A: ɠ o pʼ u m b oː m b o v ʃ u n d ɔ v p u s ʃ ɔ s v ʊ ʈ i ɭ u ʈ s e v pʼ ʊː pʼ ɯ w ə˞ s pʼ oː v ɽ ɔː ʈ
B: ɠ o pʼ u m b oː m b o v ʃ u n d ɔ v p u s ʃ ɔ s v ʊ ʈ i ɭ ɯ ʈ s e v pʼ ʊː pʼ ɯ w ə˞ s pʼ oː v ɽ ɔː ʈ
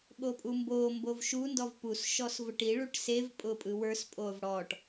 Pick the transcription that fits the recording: A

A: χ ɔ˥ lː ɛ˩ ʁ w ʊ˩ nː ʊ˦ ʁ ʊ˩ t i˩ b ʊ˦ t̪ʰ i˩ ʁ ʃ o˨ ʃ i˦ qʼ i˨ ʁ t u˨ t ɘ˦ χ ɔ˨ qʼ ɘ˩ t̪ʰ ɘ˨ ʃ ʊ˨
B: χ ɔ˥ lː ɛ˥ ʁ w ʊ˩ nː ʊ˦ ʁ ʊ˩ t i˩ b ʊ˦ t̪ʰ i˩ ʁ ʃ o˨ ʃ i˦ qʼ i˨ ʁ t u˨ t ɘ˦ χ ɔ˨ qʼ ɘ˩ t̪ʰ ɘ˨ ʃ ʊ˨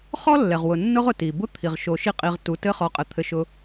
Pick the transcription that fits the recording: A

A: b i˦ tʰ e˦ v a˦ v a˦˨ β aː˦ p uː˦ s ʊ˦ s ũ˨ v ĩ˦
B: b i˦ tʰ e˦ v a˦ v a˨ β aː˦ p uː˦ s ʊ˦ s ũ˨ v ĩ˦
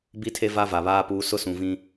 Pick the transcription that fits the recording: B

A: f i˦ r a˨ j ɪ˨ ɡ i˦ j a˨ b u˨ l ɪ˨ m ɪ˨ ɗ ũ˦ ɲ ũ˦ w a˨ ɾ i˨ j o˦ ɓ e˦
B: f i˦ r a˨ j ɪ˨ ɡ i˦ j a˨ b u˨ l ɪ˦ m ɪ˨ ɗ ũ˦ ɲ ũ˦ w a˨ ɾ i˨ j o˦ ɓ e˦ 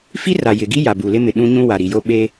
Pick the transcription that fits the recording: B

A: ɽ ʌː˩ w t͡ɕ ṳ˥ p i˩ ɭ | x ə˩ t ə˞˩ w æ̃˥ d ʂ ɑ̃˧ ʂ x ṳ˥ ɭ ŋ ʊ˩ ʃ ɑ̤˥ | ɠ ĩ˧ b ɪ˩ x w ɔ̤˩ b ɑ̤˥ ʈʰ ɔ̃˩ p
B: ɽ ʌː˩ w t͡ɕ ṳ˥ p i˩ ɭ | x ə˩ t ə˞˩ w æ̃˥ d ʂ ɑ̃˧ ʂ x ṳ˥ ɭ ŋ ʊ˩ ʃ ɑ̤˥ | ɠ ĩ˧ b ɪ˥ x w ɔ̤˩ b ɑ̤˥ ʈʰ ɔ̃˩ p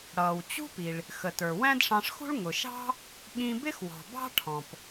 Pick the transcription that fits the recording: B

